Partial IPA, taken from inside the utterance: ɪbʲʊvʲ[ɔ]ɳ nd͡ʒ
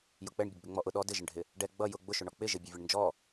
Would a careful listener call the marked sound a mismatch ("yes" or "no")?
yes